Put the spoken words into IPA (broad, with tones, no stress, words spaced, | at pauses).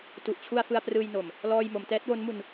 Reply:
tu˨˩ʔt͡ɕʰu˧a̯ fɯ˧a̯prɯː˧jno˨˩m | lɔː˧jmo˩˦m tɛː˦˥t̚wo˦˥nmu˧n